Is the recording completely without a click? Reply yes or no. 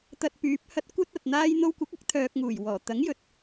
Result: yes